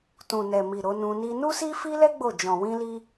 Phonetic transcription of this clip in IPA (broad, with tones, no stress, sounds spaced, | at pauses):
t ũ˨ n ɛ˨ m i˨ ɾ o˨˦ n ũ˧ n i˧ n u˦ s i˦ f i˦ l ɛ˦ ɡ͡b o˦˨ d͡ʒ ɔ̃˨ w ĩ˧ l i˧